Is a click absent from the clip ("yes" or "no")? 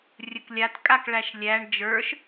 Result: yes